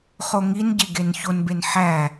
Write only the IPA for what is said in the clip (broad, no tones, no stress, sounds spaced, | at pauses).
χ o ŋ i n ɟ e ɡ e n ç o n b e n ħ æ